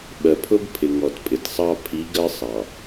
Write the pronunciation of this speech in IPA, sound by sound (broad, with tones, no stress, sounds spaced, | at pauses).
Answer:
ɓ ɜ˨ pʰ ʊ˦ b pʰ ɪ˨ ŋ ɔ˨ t pʼ ɪ˨ t sˤ ɑ˦ pʰ i˨˦ ɡ ɜ˦ sˤ ɑ˨